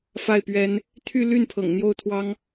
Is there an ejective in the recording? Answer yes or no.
no